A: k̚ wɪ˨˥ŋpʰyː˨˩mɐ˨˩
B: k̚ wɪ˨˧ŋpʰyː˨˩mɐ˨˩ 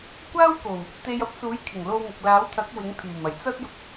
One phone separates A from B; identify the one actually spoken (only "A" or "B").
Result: A